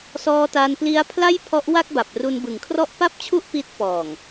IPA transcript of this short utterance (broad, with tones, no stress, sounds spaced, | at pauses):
s ɔː˧ t a˧ n p l i˦˥ a̯ pʰ l a˥˩ j pʰ ɔ˦˥ ʔ w a˥˩ k̚ b a˨˩ p̚ r u˧ n b ɯ˨˩ ŋ kʰ r ɔ˥˩ ʔ p a˥˩ p̚ t͡ɕʰ u˥˩ ʔ p i˦˥ t̚ p ɔː˨˩ ŋ